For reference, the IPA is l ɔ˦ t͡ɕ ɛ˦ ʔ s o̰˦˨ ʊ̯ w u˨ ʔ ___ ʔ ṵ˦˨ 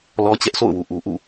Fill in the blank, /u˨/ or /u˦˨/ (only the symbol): u˨